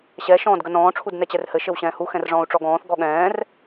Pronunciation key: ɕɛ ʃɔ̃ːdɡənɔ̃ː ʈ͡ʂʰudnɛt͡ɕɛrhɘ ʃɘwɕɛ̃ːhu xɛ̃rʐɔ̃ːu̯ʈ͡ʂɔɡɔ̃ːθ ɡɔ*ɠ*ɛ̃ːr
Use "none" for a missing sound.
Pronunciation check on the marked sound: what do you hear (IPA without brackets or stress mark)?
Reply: ɠ